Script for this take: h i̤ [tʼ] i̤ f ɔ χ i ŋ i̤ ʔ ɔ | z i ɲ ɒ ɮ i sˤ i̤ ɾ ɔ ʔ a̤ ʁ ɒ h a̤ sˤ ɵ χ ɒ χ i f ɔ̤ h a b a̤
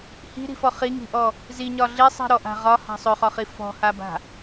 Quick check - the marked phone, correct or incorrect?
incorrect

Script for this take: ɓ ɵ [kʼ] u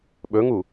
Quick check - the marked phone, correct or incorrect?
incorrect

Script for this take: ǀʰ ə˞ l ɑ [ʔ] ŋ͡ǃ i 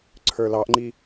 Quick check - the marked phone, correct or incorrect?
correct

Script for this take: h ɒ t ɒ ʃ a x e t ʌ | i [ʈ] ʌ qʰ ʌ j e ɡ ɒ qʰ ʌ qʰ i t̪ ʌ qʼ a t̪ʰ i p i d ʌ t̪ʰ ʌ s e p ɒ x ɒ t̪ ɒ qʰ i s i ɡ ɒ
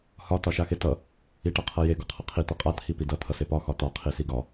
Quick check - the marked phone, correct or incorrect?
correct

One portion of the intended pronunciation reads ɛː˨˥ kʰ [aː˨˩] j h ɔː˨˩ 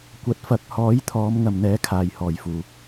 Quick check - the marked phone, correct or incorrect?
correct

